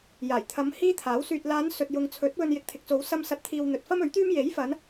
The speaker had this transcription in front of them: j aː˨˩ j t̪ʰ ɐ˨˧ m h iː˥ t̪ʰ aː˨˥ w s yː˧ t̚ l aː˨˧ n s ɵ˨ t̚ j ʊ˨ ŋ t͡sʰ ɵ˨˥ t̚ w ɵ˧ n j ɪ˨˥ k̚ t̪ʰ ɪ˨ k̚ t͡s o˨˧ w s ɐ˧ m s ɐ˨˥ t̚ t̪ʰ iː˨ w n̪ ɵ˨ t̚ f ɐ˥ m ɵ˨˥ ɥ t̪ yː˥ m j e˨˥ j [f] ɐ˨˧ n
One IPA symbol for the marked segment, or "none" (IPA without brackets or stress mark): f